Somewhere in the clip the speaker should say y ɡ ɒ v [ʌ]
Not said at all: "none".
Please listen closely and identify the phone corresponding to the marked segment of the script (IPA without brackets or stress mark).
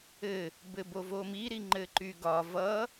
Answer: ʌ